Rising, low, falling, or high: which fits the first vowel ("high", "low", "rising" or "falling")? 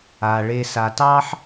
low